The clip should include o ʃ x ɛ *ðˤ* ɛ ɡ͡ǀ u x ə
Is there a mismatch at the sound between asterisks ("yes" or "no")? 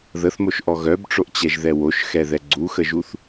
yes